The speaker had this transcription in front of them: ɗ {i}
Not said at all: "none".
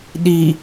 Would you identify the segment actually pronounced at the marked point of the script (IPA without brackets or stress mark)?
i